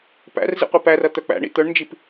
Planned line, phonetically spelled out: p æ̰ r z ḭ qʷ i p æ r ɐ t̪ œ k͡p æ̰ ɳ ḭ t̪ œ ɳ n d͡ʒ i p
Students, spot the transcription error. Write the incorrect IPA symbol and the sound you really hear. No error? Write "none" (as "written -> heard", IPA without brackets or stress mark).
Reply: none